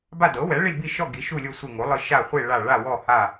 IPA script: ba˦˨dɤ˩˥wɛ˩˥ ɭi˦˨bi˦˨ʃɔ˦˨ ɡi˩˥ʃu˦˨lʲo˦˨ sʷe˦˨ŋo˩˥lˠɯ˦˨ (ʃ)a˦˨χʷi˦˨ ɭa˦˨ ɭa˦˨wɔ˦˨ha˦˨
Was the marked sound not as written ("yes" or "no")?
no